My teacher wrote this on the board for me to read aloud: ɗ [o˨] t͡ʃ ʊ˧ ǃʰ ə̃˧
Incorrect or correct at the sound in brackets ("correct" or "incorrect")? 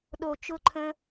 correct